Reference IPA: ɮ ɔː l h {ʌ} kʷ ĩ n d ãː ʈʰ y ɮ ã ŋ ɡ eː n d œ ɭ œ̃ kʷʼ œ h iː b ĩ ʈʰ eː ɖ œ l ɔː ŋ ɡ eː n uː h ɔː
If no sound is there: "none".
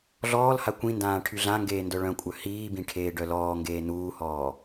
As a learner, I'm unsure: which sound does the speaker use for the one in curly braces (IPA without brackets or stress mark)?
a